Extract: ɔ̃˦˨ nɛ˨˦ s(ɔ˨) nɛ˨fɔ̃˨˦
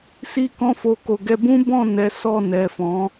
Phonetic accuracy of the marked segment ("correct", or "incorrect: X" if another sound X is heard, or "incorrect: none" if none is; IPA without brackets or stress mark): incorrect: ɔ˦˨